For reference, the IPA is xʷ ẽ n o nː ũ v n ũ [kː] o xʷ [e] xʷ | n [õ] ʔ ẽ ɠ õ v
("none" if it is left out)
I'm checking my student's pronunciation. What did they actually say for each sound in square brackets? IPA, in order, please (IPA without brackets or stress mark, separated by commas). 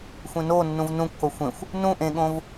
kː, ẽ, ũ